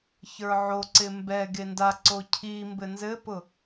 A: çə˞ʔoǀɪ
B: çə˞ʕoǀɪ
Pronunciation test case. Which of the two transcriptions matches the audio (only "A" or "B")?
B